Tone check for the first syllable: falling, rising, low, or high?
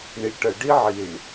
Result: low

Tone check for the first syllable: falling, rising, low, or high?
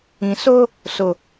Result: low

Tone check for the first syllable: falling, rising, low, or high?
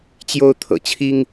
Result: high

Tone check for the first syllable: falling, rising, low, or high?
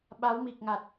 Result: rising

